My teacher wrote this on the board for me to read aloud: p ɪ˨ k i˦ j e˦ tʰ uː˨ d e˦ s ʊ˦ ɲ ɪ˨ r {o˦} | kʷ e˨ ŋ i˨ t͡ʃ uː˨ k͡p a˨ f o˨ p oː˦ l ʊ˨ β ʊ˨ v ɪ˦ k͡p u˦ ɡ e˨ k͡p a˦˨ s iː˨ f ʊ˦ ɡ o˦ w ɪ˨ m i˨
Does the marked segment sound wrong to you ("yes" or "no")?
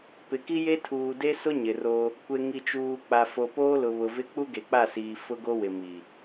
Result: no